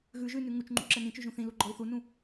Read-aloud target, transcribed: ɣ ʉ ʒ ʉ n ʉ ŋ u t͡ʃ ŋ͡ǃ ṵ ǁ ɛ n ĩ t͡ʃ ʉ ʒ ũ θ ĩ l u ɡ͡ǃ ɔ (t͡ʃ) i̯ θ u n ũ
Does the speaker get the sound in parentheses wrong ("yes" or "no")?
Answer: yes